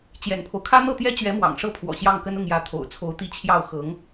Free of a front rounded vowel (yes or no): yes